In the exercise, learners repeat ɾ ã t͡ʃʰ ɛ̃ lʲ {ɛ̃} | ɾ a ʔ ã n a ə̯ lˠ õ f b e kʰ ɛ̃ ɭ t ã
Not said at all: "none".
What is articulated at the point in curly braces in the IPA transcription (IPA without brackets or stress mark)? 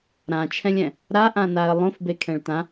ɛ̃